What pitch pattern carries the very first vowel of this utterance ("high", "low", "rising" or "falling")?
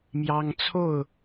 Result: high